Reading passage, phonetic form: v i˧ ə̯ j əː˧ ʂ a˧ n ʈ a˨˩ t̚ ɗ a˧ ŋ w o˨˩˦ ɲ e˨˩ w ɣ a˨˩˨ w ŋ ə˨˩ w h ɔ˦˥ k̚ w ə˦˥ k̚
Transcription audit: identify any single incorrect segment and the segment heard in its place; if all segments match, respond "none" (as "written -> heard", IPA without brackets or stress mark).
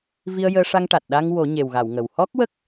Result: n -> ŋ